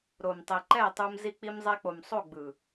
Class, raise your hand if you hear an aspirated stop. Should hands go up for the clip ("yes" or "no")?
no